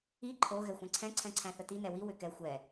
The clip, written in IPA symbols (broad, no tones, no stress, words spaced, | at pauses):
i ǃʰo ɣɛxʷɛ̃ǀʰɛ̃ ǀʰɛ̃ǀʰæ̃θəti nɛwi wʏkɛ xʷɛ